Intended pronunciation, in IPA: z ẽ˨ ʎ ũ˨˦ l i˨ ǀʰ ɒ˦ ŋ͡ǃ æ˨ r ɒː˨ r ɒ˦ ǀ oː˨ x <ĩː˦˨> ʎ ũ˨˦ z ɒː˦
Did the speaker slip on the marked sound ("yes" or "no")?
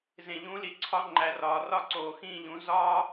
no